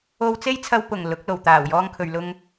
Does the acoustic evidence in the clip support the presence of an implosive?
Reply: no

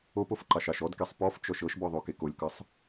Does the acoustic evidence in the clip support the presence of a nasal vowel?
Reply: no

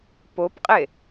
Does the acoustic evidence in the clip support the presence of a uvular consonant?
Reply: yes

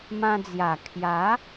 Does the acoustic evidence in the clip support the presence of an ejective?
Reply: no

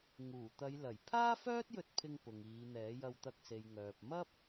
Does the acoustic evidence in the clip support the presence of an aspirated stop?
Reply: yes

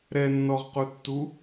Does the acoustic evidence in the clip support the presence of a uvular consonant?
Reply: yes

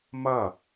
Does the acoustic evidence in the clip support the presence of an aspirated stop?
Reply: no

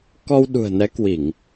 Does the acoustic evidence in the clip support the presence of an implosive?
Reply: yes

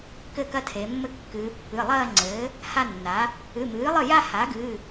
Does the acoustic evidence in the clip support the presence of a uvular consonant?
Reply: no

